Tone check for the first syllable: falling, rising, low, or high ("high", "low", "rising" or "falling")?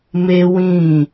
high